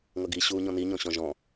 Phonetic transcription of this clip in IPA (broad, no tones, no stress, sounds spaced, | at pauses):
ŋ ʌ ɡ i ɕ uː ɲ ɔ̃ n i ɲ ɔ̃ ɕ ɔ̃ ʒ ɔ̃